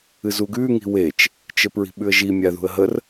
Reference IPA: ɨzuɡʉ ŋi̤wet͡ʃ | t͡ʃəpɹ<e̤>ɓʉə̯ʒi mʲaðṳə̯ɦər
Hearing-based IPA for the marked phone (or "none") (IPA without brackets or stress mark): i̤